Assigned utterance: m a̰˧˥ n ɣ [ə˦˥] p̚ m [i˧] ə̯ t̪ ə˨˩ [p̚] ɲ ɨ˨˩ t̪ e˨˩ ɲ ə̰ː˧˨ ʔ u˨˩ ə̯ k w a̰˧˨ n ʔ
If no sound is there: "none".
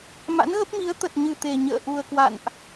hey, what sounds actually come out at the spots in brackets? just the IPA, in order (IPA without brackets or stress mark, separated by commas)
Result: ə˦˥, i˨˦, t̚